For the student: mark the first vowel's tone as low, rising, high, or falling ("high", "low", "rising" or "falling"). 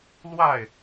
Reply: falling